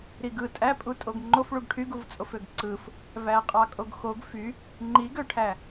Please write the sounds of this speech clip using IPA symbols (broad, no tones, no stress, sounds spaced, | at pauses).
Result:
ɾ i ɡ ɯ tʼ æ pʼ u tʼ o ɡ ŋ͡ǃ o f ɭ u ɡ ʈʰ y ɡ u v t͡sʼ o f ø ɡ ǀ ɯ f | v æ qʼ ɑ kʼ o ɡ x o ɡ f y | ŋ͡ǃ i ɡ ø ʈʰ æ